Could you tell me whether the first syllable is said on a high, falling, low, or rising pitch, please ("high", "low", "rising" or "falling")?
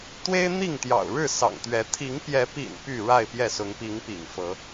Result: high